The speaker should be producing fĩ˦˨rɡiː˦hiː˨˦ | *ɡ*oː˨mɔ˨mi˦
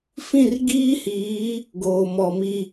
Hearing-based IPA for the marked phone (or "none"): ɡ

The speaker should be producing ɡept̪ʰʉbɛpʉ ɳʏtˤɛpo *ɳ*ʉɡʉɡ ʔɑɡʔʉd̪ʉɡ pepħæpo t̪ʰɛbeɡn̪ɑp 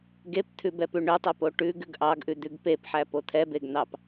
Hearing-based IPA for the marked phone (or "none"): ʈ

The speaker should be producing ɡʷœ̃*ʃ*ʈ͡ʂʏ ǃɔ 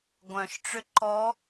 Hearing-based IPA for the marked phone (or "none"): ʃ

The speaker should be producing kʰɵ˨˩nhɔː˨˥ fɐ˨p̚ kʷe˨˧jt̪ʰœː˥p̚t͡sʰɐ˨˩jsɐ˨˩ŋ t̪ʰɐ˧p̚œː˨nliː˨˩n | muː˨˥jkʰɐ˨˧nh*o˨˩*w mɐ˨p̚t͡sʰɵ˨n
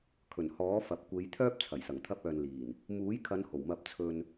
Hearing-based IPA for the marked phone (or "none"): o˨˩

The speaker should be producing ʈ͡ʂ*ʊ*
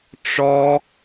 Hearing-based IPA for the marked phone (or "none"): ɔ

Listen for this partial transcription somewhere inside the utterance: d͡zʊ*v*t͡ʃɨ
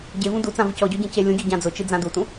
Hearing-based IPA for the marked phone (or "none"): none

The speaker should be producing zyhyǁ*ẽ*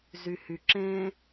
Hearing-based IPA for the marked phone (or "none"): ẽ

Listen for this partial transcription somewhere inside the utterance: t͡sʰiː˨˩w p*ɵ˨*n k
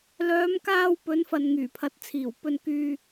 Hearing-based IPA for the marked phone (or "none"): ɵ˧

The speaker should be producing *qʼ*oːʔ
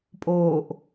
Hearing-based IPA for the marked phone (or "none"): pʼ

